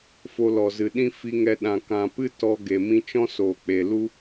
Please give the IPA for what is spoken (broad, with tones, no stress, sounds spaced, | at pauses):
f o˧ l ɔ˨ z ɨ˨ ɗ ĩ˦ f i˧ ŋ ɛ˧ ɗ ã˨ k ã˨ p ɨ˦ t ɔ˧ ɡ e˨ m ĩ˧ t͡ʃ ɔ̃˦ s o˨ k͡p e˨ l u˦